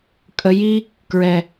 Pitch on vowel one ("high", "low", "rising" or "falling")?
low